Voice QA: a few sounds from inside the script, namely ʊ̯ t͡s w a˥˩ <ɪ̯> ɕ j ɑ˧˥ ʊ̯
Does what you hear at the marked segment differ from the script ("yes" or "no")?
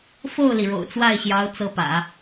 no